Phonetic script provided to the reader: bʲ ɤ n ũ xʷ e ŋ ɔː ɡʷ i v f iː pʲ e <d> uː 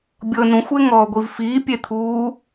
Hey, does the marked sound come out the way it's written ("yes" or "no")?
no